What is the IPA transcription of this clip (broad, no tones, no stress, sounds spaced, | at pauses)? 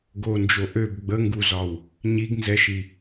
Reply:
ɡ o n d͡ʒ o ʔ ø b ɡ͡b ə ŋ ɡ u z ɒ w | ɲ i ɡ n z ɛ ʃ i